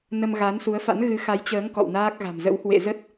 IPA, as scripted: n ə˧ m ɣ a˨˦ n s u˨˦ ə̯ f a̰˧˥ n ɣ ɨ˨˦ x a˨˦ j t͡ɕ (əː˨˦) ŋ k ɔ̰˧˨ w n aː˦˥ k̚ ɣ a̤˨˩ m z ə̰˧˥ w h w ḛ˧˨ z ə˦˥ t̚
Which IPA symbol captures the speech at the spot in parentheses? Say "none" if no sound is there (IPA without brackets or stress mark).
əː˨˦